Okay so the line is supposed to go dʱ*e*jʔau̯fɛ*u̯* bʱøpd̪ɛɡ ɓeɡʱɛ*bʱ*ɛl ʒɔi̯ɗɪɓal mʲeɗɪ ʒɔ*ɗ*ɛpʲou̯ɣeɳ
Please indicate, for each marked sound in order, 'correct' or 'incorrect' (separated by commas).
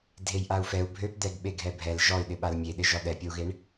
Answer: correct, correct, correct, correct